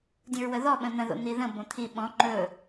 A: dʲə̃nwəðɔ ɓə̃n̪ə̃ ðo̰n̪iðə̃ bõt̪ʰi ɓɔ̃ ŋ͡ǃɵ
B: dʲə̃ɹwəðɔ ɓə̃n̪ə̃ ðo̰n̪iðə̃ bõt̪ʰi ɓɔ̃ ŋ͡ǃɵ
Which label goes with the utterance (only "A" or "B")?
B